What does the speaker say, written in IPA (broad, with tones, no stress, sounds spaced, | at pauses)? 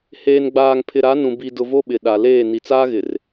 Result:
h eː˨ n ɡ͡b aː˨ ŋ pʰ ɪ˨ ɾ a˨˦ n ũ˨ b i˨ d ʊ˨ v o˦ ɓ ɪ˨ ɗ a˨ l eː˦˨ n i˨ t͡s aː˦ ɣ ɪ˨ r